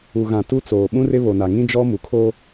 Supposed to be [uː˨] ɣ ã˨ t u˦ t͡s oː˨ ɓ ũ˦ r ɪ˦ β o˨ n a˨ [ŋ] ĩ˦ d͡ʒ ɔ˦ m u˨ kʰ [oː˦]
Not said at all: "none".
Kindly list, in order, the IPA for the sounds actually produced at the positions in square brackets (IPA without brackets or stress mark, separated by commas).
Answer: u˨, ŋ, oː˦